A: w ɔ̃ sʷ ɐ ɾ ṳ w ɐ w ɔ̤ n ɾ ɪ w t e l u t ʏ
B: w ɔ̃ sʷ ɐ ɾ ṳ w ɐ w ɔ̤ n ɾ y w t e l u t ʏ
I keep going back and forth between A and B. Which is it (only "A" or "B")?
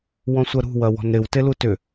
A